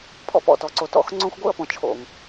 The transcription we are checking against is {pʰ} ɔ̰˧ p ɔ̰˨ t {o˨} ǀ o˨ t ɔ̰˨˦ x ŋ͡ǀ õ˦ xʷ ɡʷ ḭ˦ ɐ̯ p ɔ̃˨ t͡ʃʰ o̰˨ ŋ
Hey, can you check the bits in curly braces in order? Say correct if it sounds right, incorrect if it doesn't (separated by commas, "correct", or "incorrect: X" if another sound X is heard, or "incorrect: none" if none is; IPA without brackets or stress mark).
correct, incorrect: ɔ˨